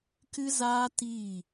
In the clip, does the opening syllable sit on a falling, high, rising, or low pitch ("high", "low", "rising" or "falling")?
high